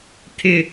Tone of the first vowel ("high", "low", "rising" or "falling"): high